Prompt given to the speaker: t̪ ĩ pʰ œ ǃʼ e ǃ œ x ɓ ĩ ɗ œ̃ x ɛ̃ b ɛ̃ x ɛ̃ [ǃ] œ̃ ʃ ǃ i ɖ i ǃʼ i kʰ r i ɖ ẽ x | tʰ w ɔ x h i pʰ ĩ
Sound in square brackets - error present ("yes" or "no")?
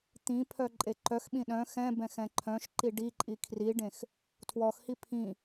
yes